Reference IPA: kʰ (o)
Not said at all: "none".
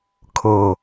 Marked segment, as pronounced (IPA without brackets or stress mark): ɤ